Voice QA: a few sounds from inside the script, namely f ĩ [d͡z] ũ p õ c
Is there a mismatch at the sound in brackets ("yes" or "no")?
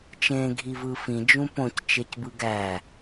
yes